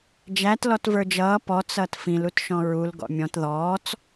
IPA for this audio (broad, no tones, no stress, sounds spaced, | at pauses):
d͡ʒ æ t l ɔ t v ə˞ d͡ʒ ʌː p ɔ t͡s ʌː t f ĩ l u t ʃ ɔ̃ ɹ u l ɡ ɔ̰ mʲ ɔ̃ t ð ɔː t͡s